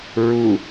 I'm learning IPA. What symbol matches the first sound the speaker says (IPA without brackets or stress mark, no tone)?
ɹ